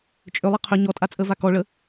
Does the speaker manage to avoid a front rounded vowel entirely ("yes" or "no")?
no